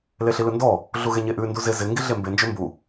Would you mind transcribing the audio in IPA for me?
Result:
l e ɬ i l ɯ n d ɔ | ɮ u ɣ e ɲ e ʔ ʉ n d u z ɪ z ɪ ŋ ɡ i ɮ e m b e n d͡ʒ ø m b u

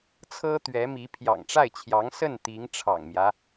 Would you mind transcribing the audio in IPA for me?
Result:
t͡sʰ ɤ˥ t̪ ɥ ɛ˧˥ m i˧˥ pʰ j ɑ̰˨˩ ŋ ʈ͡ʂ a˥˩ ɪ̯ t͡ɕʰ j ɑ˧˥ ŋ s ə˥˩ n t̪ i˧˥ ŋ ʈ͡ʂʰ ɑ̰˨˩ ŋ m j ä˦

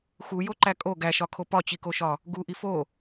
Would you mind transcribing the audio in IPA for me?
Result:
x u j o ǃ æ kʼ o ɡ æ ʃ ɒ kʰ o p ɒ t͡ɕ i k o ʃ ɒ | ɡ u ʔ i f o

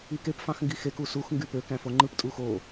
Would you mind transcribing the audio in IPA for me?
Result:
i k e p f ɑ̃ x ŋ ɡ i x e k u s u x ŋ ɡ y p ø k æ̃ f o ŋ͡ǃ ɯ p tʼ u x o

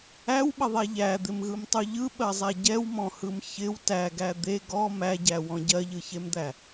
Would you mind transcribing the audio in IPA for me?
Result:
æ w ɓ ə ðˤ æ ʎ æ d̪ ɪ m ɣ ɯ m tˤ u ʎ ɯ ɓ ɜ zˤ æ ɟ ɛ w m ɔ̃ h ɯ m ç ɪ w t æ ɡ æ d̪ e ɡ ɔ m æ ɟ æ w ɔ̃ ɟ ɜ ʎ ɯ ç e m d̪ æ

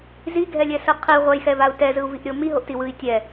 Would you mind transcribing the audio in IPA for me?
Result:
z i ɡʱ ɛ lʲ ɛ s ɯ qʰ i ʁʷ a j x ɛ v a u̯ t ɛ z ɯ u̯ v i ʔ ɾʲ o m i ɦ o ʔ t i w ɯ i̯ tʲ ɛ

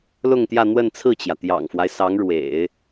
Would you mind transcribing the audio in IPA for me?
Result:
l ʊ˥˧ ŋ t̪ j ä˥˧ n̪ w ə˥˧ n t͡sʰ ɹ̩˥˩ t͡ɕ j ä˩ t̪ j ɑ̰˨˩ ŋ f w a˦ ɪ̯ s ɑ˧˥ ŋ ɻ w ḛ˨˩˦ ɪ̯

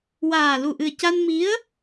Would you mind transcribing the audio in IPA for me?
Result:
w aː˨˩ l u˨˩ ʔ ɨ˨˩ ə̯ c a˧ n m i˧˥ ə̯

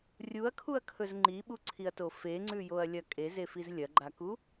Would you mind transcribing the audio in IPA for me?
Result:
rʲ u ɐ̯ kʰ u ɐ̯ kʰ ɵ z ŋ͡ǃ i ɓ u ǀʰ i ɐ̯ t o f e ŋ͡ǀ ʉ j o ɐ̯ lʲ ɐ kʼ e z e f i z lʲ ɐ ɡ͡ǃ a k u

